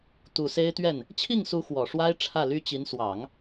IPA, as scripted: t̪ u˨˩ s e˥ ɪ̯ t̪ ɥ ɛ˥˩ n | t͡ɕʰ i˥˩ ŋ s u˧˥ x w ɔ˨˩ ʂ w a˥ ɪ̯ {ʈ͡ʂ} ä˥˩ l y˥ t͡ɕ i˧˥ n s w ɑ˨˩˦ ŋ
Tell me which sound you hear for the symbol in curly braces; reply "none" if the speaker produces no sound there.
ʈ͡ʂʰ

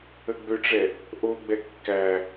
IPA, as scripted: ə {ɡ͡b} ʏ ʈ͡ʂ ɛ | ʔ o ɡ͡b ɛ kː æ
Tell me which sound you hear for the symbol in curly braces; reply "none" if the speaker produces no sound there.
ɡ͡b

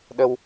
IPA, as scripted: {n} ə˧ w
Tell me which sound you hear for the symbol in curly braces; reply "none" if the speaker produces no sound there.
ɗ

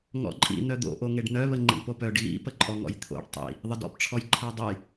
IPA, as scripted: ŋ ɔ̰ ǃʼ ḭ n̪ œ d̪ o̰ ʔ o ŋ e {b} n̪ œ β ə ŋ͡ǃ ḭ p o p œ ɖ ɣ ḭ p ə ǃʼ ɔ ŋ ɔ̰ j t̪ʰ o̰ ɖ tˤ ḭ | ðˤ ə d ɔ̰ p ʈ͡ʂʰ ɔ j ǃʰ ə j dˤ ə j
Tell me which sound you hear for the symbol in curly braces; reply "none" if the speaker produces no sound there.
ɖ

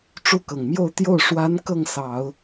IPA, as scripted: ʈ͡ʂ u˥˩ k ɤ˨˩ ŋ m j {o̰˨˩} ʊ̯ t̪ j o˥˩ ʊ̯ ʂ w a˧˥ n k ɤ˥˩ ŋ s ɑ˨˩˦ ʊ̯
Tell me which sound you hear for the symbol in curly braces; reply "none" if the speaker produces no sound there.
o˥˧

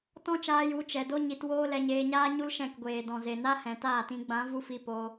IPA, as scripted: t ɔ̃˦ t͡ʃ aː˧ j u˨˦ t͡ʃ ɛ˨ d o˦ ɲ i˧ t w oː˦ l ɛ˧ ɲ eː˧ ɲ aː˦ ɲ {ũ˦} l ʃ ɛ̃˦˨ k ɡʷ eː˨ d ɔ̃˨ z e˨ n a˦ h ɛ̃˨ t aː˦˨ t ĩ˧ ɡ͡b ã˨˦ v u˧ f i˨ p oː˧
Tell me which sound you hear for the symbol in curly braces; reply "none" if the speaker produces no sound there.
u˦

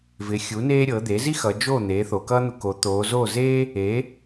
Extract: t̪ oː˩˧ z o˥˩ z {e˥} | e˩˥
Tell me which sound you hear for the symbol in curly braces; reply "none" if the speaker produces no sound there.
eː˥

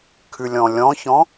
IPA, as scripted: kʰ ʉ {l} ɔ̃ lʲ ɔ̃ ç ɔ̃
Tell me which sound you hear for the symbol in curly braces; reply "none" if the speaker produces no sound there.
lʲ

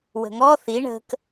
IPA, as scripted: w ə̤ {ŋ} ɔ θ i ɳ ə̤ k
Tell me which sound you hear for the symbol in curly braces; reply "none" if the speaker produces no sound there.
ŋ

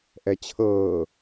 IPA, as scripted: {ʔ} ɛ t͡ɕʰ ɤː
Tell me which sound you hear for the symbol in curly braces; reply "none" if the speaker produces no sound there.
ʔ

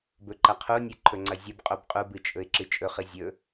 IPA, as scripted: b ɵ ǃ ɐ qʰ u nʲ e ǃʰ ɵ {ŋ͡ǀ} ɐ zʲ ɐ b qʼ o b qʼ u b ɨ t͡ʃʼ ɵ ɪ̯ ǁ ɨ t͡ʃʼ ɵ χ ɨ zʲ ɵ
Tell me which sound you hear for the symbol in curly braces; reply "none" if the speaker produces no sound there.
ŋ͡ǀ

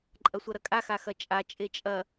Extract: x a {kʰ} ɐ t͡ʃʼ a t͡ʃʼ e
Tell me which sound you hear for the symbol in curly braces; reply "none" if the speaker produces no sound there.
x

